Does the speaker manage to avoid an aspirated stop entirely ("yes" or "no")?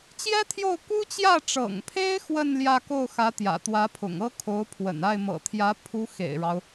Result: no